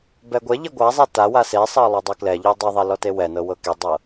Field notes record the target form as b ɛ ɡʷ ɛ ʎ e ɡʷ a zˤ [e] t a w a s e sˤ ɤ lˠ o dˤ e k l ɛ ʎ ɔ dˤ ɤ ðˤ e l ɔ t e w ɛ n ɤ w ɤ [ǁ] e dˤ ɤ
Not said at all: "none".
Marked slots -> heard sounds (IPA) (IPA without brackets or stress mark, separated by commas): e, k